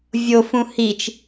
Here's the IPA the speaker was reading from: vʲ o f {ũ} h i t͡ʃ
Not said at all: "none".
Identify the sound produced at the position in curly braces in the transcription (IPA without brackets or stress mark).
ũ